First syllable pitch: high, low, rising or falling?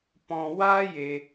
high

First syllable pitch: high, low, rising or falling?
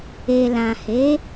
low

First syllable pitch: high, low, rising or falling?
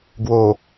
low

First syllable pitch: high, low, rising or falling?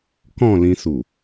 falling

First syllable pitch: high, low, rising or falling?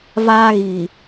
high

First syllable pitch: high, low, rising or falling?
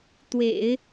low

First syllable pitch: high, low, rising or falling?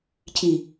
low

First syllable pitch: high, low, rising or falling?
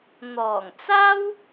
low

